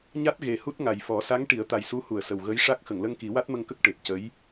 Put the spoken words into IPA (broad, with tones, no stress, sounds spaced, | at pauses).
ɲ a˦˥ t̚ ɣ e˨˩ h u˦˥ t̚ ŋ a˨˩ j f ɔ˨˩˦ s a˧˥ ŋ ʈ i˨˩˦ ə̯ t̪ a˨˩ j s u˧˥ h u˨˩˨ ə̯ s ə˨˩ w ɣ ə˧˥ j ʂ a˦˥ k̚ x ə˨˩˨ ŋ l ə˧ ŋ k i˨˩˦ w a˦˥ t̚ m ə˧ ŋ k ə˦˥ k̚ ʈ e˨˩ p̚ c ə˧˥ j